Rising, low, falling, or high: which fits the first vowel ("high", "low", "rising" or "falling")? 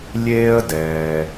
high